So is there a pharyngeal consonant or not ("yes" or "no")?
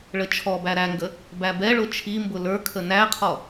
no